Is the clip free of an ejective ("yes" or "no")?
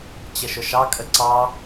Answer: no